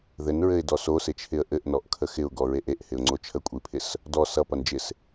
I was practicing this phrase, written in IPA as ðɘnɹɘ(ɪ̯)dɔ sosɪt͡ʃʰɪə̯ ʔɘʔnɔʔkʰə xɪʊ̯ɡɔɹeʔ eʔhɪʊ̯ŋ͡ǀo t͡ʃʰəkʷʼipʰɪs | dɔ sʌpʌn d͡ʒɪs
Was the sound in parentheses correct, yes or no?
yes